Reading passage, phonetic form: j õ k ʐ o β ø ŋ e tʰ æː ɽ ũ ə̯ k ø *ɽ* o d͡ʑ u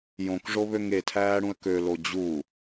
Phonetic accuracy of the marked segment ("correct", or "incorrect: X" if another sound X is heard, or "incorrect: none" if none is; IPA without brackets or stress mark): incorrect: l